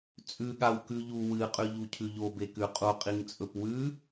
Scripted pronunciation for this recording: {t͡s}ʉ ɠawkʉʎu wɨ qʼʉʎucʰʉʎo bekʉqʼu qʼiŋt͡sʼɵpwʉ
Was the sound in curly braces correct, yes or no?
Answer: no